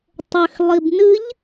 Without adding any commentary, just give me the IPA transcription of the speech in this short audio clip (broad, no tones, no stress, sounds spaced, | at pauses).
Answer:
tˤ ʏ x lˠ i b n ɨ ʎ